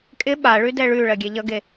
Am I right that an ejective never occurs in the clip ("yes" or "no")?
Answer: no